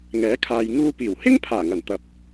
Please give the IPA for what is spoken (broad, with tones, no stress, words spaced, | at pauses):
ŋɛː˨˥kʰaː˨j ŋuː˧piː˨˩w hɪ˥ŋ pʰaː˨˩ŋɐ˨˩nt̪ɐ˨˥p̚